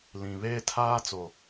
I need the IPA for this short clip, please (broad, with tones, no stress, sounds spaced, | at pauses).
l ĩ˨ β eː˦ tʰ aː˦ t͡s o˨